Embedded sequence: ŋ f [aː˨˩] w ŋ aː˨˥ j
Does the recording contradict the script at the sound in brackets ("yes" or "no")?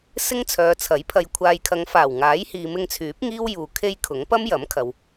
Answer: no